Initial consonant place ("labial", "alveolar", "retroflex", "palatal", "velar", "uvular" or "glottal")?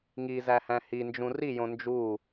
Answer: velar